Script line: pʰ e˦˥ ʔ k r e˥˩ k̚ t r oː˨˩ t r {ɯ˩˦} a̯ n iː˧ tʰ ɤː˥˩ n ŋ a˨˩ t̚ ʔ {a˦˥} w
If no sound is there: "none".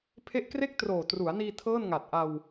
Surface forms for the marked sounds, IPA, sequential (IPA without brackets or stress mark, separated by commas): u˩˦, a˧